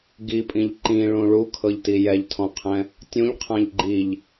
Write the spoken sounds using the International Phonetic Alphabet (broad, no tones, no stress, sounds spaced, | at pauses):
ɡ i pʼ ĩ ʎ ǃ ĩ ɭ ũ ɭ u kʰ ɤ ʎ t i j ɛ ʎ tʰ ɔ̃ qʰ ɛ̃ | tʲ ũ ʎ qʰ ã ʎ ɡ͡ǃ i ʎ